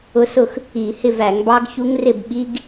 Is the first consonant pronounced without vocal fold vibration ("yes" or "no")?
yes